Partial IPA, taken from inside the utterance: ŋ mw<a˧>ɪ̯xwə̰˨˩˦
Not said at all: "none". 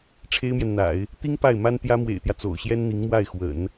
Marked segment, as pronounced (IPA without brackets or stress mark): a˥˩